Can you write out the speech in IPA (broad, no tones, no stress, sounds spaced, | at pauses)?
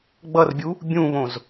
ɡ͡b ʌ r bʲ u | bʲ ũ β õ z